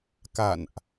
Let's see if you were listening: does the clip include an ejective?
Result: no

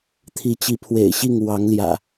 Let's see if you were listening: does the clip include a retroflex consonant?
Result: no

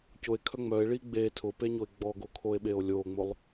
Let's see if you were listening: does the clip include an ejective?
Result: no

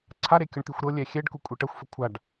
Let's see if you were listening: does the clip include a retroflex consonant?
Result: yes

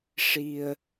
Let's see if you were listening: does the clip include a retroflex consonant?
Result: yes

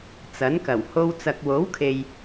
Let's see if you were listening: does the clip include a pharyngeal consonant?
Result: no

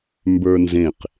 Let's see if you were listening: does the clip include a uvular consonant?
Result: yes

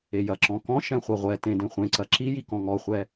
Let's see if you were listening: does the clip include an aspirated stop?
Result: no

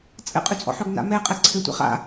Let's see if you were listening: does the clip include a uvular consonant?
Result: yes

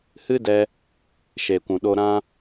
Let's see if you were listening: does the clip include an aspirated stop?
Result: no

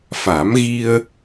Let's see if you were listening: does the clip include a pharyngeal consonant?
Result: no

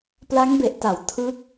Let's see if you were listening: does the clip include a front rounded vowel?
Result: no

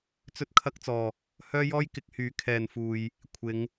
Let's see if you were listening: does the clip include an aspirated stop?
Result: yes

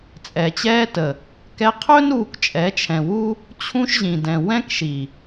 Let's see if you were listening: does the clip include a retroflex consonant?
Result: no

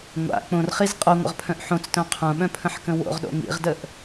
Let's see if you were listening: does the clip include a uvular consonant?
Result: yes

